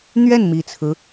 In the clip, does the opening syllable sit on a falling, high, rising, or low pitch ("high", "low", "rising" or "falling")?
falling